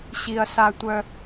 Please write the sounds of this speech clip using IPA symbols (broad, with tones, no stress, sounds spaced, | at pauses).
ɕ i˩ ɐ̯ s a˨ tʷ œ˨